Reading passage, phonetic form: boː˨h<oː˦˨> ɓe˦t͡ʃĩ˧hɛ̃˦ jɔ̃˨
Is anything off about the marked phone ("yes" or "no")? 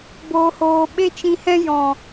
yes